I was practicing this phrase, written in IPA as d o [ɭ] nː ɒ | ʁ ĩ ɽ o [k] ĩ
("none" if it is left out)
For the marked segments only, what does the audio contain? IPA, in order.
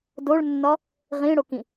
ɭ, k

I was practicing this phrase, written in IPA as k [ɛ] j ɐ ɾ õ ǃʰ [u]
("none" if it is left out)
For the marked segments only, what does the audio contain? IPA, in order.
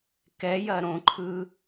ɛ, ɯ

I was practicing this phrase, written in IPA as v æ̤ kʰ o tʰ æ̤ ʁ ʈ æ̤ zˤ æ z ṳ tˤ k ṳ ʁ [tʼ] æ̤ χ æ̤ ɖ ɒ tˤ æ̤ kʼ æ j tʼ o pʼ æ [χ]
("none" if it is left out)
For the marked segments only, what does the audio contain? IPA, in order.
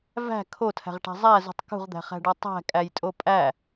d̪, none

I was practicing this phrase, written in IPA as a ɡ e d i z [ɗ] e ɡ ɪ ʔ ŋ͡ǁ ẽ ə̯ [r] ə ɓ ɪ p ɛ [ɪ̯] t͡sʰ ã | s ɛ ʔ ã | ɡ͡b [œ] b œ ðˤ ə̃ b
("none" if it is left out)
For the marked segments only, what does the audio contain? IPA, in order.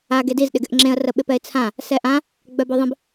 ɗ, r, ɪ̯, œ

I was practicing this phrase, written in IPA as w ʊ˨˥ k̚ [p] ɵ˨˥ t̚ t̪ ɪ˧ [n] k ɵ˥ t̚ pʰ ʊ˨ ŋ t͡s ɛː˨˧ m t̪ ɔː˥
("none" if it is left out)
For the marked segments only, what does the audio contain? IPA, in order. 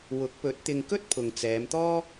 p, ŋ

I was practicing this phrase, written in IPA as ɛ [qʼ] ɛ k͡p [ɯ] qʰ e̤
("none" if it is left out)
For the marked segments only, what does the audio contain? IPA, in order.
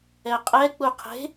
qʼ, u

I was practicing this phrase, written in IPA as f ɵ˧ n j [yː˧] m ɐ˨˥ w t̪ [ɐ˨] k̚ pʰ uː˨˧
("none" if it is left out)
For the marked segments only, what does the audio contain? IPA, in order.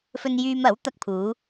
yː˧, ɐ˧

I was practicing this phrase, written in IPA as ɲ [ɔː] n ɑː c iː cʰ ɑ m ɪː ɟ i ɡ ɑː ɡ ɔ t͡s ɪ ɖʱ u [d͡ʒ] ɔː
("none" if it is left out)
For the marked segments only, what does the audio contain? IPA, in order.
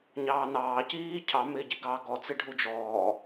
ɑː, d͡ʒ

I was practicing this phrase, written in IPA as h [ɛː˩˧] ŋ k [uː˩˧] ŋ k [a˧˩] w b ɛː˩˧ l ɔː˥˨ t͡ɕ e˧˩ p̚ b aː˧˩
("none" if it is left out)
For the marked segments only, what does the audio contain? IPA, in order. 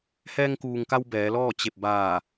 ɛː˧, uː˩, a˧

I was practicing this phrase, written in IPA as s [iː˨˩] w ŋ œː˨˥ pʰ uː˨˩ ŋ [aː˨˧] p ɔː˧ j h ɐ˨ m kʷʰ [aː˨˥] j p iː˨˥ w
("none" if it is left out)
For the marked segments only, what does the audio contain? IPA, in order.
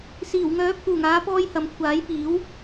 iː˨˩, aː˨˧, aː˨˥

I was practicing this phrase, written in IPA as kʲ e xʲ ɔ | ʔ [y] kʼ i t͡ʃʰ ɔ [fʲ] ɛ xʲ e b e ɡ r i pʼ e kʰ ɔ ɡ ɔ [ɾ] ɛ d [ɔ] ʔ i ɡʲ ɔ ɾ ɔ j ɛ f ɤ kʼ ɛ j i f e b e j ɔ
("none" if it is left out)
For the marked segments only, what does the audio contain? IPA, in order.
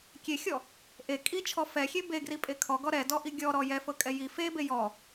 e, f, ɾ, ɔ

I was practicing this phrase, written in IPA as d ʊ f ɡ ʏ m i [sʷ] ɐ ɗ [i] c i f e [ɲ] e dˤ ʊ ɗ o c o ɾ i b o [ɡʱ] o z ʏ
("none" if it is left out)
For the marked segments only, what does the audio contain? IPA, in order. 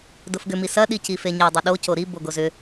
s, i, ɲ, ɡ

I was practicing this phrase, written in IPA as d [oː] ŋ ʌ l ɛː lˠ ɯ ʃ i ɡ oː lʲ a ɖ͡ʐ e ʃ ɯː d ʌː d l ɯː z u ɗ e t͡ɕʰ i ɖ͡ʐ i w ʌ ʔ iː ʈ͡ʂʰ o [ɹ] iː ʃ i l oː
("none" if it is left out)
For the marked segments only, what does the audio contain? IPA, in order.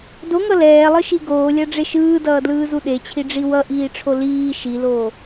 o, l

